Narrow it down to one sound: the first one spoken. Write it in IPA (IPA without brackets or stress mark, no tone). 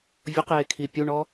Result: vʲ